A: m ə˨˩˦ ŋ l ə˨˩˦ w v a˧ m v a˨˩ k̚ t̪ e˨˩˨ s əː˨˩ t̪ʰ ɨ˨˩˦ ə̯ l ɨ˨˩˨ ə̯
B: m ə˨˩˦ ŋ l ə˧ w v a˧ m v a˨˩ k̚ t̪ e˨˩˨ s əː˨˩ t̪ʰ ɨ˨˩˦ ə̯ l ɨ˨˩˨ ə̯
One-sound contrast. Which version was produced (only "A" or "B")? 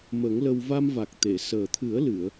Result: B